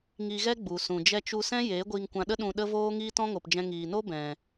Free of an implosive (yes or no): no